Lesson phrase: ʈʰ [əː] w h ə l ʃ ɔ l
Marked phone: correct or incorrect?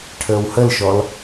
correct